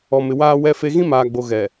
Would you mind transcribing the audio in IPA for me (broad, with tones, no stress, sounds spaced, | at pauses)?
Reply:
ɔ˨ m ɪ˨ w aː˦ w ɛ˦ f e˦ ɣ ĩ˦ m aː˨ ɡ͡b o˨ ɣ ɛ˨